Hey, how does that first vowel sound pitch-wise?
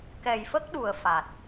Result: low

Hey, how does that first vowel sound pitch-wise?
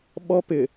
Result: high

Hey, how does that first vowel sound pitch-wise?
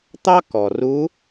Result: high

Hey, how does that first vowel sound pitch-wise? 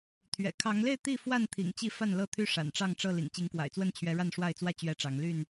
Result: low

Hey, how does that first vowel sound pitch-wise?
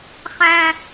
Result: high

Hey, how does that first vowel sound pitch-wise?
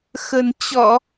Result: low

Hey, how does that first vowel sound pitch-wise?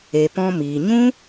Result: low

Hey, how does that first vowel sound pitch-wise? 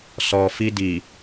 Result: low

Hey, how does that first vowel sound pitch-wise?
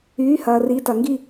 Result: rising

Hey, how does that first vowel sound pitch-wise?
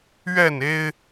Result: falling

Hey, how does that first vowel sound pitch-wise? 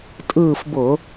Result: falling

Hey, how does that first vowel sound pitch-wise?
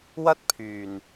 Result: high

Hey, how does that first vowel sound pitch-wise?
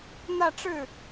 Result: falling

